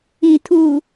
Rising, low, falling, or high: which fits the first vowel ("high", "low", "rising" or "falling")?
low